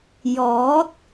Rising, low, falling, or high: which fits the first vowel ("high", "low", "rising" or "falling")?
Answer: rising